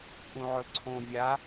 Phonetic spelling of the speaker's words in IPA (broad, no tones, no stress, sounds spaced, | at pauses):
ʔ ũ ʕ ɵ ǀʰ õ vʲ a